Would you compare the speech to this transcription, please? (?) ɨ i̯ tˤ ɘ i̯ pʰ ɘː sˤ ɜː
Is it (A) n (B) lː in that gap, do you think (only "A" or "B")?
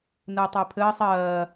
A